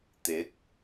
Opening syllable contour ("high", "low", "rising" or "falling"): rising